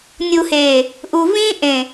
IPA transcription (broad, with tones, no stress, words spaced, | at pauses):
nʲu˨heː˨ | ʔu˨vĩː˦ ʔẽ˨